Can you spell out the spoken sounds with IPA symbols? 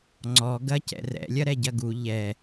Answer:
ŋ͡ǀ ɔ ɡ ɐ c ɛ̰ r ɛ̰ lʲ ɐ ɾ ɛ ɟ ɐ ɡ u ʎ ɛ

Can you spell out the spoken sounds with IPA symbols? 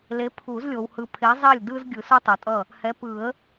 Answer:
l e˨˥ pʰ u˨˩˦ z lʲ o˨ w h ɯ˨ pʰ e˨˥ zˤ ɛ˥˩ lʲ d ɯ˦ z ɡʲ ɯ˨˩˦ s u˦ tˤ o˨ tʼ ʌ˥˩ | h ɛ˨˥ p ɯ˨˩˦ ə̯

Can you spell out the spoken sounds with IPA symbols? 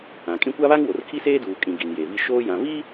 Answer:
ã˨ kʼ ĩ˦ kʷ a˦ β a˦ ŋ w o˨ r kʰ i˦ s eː˦ d uː˨ kʼ ĩ˨ ɡ i˨ n j e˨ v i˦ ʃ oː˦ j ã˨ v i˦

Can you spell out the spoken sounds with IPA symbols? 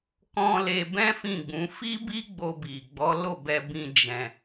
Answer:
k ɔ̃˧ l e˧ b ɛ̃˦ f ĩ˦˨ ɡ͡b ũ˨˦ f i˦ b i˦ ɡ͡b o˧ b i˨ ɡ͡b ɔ˨˦ l o˦˨ b ɛ˧ b ĩ˧ d͡ʒ ɛ̃˧

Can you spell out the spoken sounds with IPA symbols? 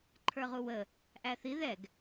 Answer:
ǃʰ ə˞ ʁ u w ə | ʔ æ θ i ð ɛ ɡ

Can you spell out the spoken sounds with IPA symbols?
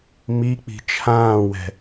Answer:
m i k͡p i̤ t͡ʃʰ ãː w ɛ̤

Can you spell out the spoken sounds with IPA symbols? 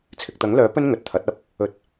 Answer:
t͡sʰ ɪ˨ k̚ t̪ ɐ˨˥ ŋ l œː˨˥ p ɵ˥ n ŋ ɵ˨ t̚ t̪ʰ ɐ˨˥ t̚ ɐ˥ p̚ | ɵ˧ t̚

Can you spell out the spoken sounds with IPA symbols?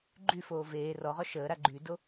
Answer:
ɡ͡ǃ y f oː v eː r ɔ ʁ ɔ ʃ əː ɾ a ɡ͡ǃ y d o

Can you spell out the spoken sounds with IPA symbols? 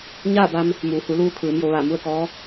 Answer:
ɲ aː˥˨ b a˧ m | m uː˩˧ h u˩˧ l uː˧ kʰ ɯː˩˧ m j o˩˧ ʋ aː˧˩ m u˥˨ ə̯ k ɔː˧˥

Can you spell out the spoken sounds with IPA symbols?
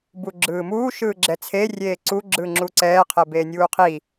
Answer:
b u ɡ͡ǁ ɯː m uː ʃ ɯː ɡ͡ǁ ɛ t͡sʰ e rʲ eː ǀ u ɡ͡ǁ ɯː ŋ͡ǁ u ǀ ɛː qʰ ɛ b eː nʲ uː qʰ i

